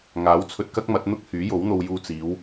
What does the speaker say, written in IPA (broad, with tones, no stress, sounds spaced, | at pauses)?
ŋ aː˨˥ w t͡sʰ ɵ˧ t̚ k ɐ˥ k̚ m ɐ˨˥ t̚ n̪ ʊ˥ k̚ h yː˨˥ j o˨˥ w n̪ o˧ w j uː˧ t͡s iː˨˧ w